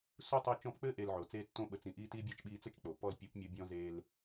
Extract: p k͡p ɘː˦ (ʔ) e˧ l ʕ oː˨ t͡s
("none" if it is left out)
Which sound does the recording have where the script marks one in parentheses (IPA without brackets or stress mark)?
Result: ʔ